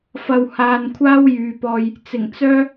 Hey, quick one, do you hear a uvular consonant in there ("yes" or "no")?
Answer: no